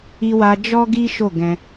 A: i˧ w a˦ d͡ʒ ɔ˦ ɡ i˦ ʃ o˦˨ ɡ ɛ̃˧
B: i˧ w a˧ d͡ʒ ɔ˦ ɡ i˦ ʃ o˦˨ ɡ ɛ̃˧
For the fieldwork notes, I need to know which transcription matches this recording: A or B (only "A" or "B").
B